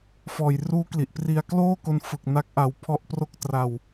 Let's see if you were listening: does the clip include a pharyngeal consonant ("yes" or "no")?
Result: no